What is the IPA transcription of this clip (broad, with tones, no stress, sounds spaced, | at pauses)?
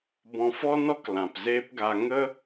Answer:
b ɔ̃˧ f ɔ˦ n ɔ˦ k l ã˨ p z eː˦ p ɡ a˧ ŋ ə˦